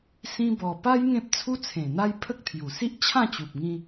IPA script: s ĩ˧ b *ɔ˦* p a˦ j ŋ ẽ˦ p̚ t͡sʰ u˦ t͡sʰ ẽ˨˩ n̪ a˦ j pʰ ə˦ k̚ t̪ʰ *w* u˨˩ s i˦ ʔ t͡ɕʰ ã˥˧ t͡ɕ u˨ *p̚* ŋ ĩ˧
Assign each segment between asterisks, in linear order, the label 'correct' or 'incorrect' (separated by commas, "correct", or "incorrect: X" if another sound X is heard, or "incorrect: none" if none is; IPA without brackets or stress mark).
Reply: incorrect: ɔ˨˩, incorrect: j, correct